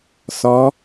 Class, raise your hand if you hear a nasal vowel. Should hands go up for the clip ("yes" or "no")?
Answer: no